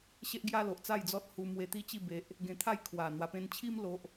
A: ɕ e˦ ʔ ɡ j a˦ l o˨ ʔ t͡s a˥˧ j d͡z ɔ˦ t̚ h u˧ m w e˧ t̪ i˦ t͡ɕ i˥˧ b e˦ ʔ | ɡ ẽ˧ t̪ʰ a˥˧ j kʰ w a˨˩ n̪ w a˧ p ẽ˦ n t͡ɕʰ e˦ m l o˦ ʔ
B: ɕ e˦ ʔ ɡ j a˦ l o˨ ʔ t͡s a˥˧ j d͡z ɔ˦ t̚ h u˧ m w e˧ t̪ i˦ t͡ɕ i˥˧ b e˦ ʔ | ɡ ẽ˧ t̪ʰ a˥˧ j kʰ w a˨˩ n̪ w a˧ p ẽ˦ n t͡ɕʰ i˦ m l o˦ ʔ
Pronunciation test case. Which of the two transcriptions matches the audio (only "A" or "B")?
B